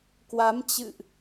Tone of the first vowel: rising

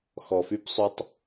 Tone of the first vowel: low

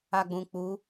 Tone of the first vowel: low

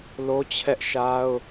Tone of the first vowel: high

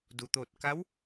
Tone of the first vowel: low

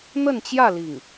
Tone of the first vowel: falling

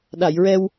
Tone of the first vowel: low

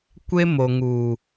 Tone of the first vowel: high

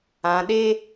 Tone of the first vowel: low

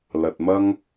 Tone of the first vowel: low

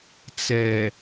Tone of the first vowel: low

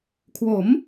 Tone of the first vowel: rising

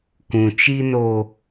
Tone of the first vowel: low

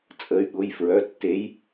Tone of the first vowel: rising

